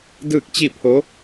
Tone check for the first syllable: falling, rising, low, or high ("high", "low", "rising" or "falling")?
falling